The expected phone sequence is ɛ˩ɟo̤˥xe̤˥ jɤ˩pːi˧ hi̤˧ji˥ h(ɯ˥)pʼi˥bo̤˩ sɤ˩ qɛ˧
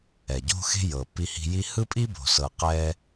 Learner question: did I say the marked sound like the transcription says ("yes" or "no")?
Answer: yes